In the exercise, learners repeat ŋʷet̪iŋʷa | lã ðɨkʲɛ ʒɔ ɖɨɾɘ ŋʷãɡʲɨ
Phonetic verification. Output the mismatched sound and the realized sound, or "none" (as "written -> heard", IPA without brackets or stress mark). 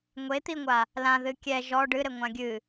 none